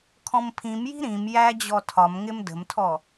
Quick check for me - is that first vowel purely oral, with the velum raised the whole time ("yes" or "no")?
no